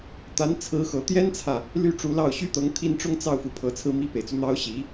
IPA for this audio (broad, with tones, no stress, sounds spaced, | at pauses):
t̪ a˧˥ n t͡sʰ ɹ̩˧˥ x ɤ˨˩ t̪ j ɛ˥ n t͡sʰ ä˨ | l y˥˩ ʈ͡ʂ u˧˥ l ɑ˥˩ ʊ̯ ɕ y˥ t̪ ɤ˧˥ ŋ t̪ʰ i˥˩ n ʈ͡ʂ ʊ˥ ŋ t͡s ɑ˥˩ ʊ̯ f u˨˩ pʰ ɤ˧˥ t͡sʰ ɹ̩˥ m i˥˩ p e˨˩ ɪ̯ t͡s u˦ n̪ ɑ˥ ʊ̯ ɕ i˧˥